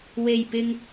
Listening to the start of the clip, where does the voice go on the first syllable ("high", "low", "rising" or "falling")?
low